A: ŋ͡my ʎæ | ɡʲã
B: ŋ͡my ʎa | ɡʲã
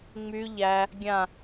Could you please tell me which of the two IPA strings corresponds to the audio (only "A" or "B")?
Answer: A